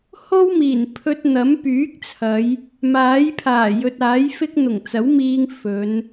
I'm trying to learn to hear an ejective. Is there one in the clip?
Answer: no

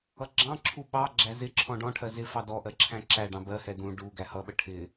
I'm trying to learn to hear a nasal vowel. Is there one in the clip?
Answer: yes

